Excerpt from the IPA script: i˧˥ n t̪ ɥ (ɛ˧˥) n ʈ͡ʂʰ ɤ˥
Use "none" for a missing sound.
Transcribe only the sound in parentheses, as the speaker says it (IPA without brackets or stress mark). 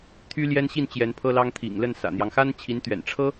ɛ̰˨˩